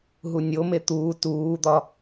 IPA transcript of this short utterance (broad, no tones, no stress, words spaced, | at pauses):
ɦunʲome t̪uː tuːd̪ɒ